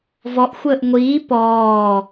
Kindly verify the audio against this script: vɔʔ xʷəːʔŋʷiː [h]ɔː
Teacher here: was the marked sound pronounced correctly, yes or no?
no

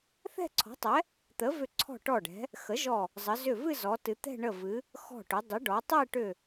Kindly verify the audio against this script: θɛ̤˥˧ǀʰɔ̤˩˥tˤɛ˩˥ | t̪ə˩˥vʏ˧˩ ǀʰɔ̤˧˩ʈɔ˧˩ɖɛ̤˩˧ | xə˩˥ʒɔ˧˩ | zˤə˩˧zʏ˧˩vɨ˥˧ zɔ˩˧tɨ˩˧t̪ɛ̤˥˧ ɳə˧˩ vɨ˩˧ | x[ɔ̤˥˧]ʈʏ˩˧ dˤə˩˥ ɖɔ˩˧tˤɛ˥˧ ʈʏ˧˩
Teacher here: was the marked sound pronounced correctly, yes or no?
no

